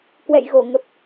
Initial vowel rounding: unrounded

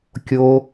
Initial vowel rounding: rounded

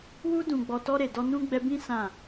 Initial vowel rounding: rounded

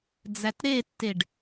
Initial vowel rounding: unrounded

